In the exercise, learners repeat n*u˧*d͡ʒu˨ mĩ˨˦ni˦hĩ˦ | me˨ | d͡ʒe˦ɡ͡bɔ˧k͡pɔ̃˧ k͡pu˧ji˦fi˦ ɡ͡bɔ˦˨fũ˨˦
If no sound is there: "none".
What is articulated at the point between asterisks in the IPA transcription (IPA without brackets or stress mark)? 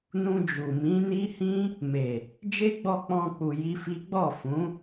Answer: ũ˧